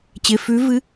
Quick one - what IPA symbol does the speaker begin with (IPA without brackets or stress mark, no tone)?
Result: t͡ɕ